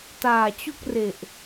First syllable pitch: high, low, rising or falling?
low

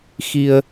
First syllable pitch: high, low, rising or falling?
low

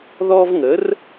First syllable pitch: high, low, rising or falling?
high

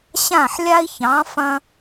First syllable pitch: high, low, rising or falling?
falling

